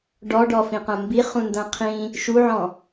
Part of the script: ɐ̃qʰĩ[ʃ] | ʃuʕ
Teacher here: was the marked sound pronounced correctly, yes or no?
no